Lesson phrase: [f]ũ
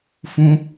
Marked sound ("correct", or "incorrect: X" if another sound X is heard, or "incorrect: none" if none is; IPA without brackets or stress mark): correct